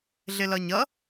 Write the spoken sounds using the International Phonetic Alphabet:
ɮ ɪ l ʌ ɲ ʌ

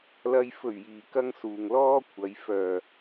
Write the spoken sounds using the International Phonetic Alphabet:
l ɐ˧ j f ɵ˨˩ ɥ j iː˨˩ k ɐ˨ ŋ s uː˨ ŋ l ɔː˥ kʷʰ ɐ˨˧ j f œː˨˩

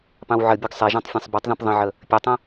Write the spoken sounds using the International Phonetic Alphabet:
p ɑ̃ w ʕ ə bʲ ø ɡ sˤ e ʒ ɑ̃ tˤ fʲ ẽ sˤ b ɔ tˤ ð ɔ̃ p ðˤ ə̃ ʕ ə | pʲ ø tˤ ə̃

